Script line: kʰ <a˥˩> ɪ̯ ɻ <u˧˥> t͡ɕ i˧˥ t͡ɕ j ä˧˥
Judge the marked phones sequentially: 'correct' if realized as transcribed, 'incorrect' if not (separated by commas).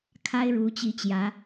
incorrect, correct